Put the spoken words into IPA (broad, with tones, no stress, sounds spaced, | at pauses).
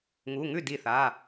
ŋ u˩˧˩ ŋ ʉ˥˩ d i˧˩ θ a˩˧˩